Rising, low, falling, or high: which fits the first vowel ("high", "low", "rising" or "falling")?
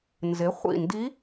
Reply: rising